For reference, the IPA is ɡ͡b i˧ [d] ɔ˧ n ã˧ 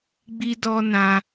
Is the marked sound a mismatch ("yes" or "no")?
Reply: no